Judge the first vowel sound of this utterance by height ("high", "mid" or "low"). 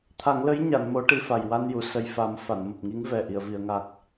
low